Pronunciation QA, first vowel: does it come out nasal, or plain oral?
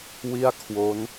oral